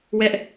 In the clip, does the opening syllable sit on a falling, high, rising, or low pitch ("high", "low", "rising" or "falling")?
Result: high